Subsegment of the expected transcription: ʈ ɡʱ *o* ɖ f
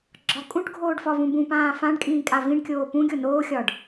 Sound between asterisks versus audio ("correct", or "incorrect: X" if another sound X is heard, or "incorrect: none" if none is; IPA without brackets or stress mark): incorrect: oː